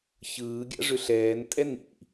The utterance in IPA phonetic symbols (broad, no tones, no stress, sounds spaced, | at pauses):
ç ɯː ɡʲ ɑ̰ ʐ ʏ ɬ ɛː n tʼ ɛ n ḭ